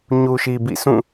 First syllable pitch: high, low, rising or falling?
low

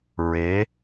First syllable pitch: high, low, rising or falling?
rising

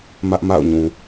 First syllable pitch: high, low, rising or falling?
high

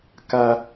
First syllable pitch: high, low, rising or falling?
high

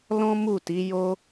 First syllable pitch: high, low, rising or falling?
high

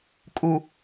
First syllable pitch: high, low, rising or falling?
low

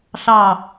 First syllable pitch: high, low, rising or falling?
falling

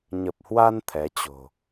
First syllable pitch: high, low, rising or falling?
low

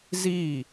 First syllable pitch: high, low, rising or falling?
falling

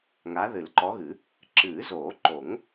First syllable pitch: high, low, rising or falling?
rising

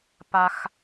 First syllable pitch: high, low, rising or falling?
high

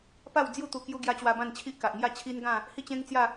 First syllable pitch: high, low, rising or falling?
falling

